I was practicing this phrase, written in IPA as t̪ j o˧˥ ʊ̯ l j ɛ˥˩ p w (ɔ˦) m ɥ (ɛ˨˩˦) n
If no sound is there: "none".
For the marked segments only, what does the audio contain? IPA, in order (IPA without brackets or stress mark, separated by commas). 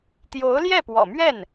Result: ɔ̰˨˩, ɛ˥˩